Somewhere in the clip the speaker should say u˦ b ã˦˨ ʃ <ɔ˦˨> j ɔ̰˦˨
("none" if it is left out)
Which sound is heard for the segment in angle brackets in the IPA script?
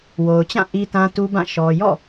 ɔ˨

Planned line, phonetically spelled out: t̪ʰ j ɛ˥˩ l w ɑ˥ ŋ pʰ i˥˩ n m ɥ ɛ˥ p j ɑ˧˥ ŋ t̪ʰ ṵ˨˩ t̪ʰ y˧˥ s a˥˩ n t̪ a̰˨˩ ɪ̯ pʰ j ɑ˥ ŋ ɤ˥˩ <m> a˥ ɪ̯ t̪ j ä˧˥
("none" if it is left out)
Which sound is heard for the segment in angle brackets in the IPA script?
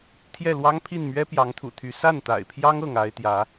ŋ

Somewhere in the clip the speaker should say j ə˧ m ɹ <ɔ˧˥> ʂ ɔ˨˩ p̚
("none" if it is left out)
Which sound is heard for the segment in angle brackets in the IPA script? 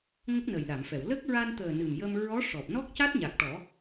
ɔ˧˥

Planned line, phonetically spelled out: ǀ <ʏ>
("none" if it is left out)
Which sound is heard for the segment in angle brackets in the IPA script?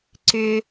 ʏ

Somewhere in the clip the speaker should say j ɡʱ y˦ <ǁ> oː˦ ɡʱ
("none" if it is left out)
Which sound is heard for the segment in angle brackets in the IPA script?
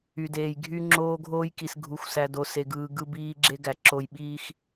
ŋ͡ǁ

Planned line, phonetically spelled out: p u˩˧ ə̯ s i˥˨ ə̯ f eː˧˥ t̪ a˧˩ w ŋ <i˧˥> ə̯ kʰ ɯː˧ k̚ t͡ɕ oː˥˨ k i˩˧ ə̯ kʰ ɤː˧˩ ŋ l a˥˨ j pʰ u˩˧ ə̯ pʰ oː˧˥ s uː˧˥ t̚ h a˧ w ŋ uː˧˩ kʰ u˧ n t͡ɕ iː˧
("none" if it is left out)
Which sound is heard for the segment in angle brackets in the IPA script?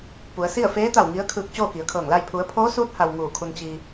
i˧˥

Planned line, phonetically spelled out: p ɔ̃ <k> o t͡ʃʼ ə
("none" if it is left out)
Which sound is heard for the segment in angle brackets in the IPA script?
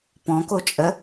k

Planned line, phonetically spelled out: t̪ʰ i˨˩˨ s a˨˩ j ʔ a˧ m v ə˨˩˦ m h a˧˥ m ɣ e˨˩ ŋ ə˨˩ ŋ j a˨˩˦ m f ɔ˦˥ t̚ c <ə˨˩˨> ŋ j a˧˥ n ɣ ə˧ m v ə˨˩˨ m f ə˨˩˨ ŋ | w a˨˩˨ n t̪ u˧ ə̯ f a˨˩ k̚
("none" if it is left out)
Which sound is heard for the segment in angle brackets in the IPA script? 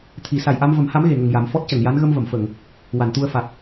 ə˨˩˨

